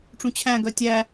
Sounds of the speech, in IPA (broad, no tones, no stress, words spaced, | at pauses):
ʈ͡ʂũt͡ɕʰæ̃ɡœ tʲæ